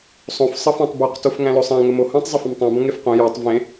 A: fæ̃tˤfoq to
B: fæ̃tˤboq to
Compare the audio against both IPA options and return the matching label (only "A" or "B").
B